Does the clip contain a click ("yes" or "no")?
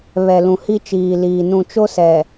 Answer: no